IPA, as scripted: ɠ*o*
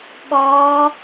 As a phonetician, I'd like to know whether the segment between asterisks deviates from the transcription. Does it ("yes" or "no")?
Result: yes